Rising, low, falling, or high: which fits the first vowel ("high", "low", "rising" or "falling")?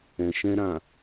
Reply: low